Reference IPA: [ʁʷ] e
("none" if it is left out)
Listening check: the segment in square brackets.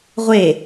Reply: ʁʷ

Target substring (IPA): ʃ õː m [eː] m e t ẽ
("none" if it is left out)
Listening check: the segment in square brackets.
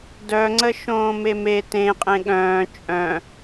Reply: e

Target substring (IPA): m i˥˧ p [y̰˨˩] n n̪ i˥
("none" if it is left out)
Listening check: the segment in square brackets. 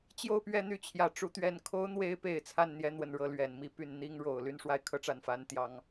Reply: y˥˩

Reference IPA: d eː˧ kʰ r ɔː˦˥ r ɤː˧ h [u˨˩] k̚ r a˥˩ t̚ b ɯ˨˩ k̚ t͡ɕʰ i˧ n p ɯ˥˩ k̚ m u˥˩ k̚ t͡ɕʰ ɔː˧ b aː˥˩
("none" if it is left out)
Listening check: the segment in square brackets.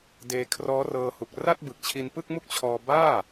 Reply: u˨˩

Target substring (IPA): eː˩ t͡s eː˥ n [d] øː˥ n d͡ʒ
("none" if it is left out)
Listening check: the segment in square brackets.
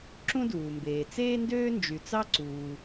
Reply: d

